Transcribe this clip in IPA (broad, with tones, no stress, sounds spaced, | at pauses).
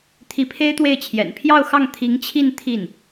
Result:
t̪ʰ i˧˥ pʰ e˥ ɪ̯ t̪ w e˥˩ ɪ̯ t͡ɕʰ j ɛ̰˨˩ n pʰ j ɑ˥˧ ʊ̯ x ɑ˥˩ ŋ t̪ʰ i˧˥ ŋ t͡ɕʰ i˥˧ n t̪ʰ i˥˩ n